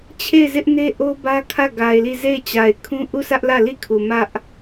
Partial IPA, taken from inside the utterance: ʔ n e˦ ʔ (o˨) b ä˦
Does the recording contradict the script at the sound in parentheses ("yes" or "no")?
yes